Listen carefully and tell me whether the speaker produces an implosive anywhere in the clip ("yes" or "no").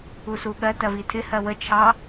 yes